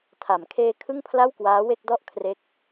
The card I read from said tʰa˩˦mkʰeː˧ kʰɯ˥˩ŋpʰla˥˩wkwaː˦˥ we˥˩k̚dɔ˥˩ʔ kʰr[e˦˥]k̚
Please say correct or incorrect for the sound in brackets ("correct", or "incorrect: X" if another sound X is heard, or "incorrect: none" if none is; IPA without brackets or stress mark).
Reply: correct